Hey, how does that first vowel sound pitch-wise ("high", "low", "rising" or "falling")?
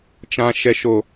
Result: high